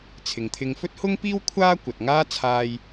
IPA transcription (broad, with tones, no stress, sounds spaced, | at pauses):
t͡sʰ ɪ˨ ŋ t̪ʰ ɪ˧ ŋ f ɵ˥ t̚ h ʊ˥ ŋ p iː˥ w kʷʰ aː˥ kʷ ɐ˨ t̚ ŋ aː˥ t͡sʰ aː˧ j